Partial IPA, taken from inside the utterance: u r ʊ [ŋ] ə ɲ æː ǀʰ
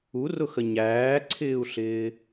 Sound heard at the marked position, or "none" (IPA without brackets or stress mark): x